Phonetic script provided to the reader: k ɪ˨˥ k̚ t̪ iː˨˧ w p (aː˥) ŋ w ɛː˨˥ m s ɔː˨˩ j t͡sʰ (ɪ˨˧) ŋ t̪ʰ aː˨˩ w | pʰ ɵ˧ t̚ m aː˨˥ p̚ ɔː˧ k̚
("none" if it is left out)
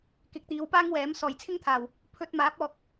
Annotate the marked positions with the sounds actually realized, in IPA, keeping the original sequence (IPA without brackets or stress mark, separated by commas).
aː˥, ɪ˥